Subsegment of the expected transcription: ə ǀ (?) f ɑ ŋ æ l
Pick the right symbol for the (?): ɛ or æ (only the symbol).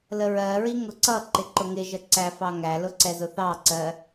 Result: æ